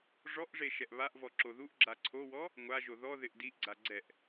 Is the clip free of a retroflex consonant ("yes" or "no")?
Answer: no